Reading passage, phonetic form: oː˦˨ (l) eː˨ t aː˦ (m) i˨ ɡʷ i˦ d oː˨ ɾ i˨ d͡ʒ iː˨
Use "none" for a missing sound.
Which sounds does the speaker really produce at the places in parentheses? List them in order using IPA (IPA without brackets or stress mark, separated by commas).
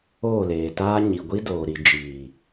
l, ɲ